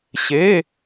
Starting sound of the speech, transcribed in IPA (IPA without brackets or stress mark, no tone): ɕ